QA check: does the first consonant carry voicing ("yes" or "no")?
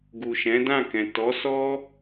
yes